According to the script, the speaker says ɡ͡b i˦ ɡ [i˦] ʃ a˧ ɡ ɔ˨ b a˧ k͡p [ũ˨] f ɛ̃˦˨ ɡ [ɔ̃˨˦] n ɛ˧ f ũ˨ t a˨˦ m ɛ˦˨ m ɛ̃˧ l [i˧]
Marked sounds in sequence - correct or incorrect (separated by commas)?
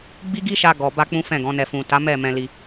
correct, incorrect, correct, correct